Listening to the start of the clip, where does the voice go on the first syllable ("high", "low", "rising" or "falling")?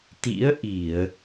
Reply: rising